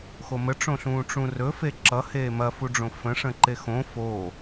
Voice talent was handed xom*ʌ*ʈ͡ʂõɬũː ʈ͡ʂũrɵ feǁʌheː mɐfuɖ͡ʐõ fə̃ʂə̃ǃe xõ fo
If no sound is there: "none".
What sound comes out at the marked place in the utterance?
ə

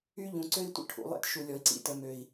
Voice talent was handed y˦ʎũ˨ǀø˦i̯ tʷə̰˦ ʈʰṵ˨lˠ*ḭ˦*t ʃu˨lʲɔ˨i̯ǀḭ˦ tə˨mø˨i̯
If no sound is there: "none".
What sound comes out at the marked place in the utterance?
ḛ˦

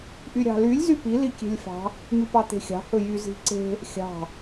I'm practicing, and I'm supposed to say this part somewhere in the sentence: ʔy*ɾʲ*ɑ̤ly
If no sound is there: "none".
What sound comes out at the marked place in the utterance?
ɾʲ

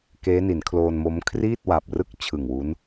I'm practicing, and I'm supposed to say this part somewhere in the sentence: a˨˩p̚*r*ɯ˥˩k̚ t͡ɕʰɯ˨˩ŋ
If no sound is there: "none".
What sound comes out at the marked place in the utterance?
r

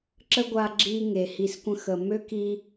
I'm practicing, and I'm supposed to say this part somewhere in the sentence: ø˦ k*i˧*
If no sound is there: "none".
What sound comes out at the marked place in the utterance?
i˧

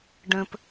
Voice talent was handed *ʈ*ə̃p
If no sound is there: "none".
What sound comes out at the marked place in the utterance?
ɖ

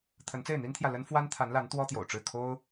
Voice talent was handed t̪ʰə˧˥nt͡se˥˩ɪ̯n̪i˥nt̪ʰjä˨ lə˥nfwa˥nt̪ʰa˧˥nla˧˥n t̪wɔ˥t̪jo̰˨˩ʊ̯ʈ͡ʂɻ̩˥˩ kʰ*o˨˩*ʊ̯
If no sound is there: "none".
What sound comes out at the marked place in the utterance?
o˥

